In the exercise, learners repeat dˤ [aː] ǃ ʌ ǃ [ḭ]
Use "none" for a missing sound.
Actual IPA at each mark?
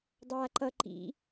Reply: aː, ḭ

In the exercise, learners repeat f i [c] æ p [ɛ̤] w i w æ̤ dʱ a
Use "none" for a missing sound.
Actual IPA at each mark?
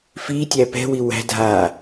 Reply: tʲ, ɛ̤

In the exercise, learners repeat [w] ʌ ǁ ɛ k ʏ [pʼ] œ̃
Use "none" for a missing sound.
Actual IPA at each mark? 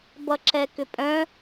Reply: b, pʼ

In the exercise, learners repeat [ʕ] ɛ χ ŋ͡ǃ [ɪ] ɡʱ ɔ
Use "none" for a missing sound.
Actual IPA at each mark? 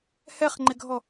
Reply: h, ɪ

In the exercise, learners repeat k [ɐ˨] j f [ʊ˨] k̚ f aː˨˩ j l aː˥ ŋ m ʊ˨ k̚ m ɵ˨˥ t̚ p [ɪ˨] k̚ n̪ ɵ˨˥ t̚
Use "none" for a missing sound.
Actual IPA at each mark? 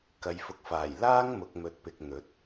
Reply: ɐ˨, ʊ˨, ɪ˨

